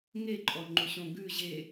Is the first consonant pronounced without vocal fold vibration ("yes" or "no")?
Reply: no